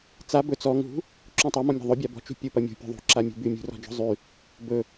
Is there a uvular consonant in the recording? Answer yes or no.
no